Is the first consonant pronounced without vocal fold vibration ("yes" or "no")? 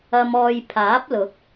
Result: no